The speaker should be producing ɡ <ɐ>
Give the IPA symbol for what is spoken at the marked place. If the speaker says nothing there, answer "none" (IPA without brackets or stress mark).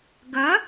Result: ɐ